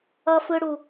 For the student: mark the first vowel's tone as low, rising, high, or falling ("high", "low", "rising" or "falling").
high